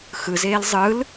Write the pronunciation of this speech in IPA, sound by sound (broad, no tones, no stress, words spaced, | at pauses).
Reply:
xɯzeːl zˤɯl